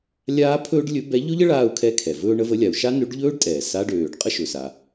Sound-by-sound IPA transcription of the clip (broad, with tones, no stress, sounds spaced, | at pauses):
lʲ aː˥ pʰ ɵː˥ ɖ lʲ ɵ˧˥ b ɛ˧˥ ʎ ɵ˥ ʎ ə˧˥ ɭ aː˥ u̯ kʰ ɛ˥ kʰ ɛ˩ v ɵː˥ ɳ ə˧˥ v ə˧˥ lʲ a˩ u̯ ʃ a˥ n ø˧˥ ɖ ʎ ɵː˥ ɖ tʼ ɛː˩ s a˧˥ ɖ øː˩ ɖ qʼ ə˥ ʃ ɵ˩ s a˩